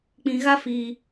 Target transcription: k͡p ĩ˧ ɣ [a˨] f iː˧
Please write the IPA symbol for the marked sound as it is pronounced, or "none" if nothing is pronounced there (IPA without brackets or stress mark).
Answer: a˦